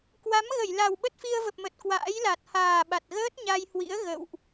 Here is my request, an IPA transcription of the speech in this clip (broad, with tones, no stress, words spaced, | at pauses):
kwa˨˦m ɣə˧˩jla˨˩w ɓə˦˥t̚fi˧ə̯və˨˩p̚mə˨˩t̚ kwa̰ː˧˥jla˨˩t̚ haː˨˩ɓa˨˩t̚ɣəː˦˥t̚ ɲa˧jhwḭ˧˥ə̯ ɣə̰˧˨wʔ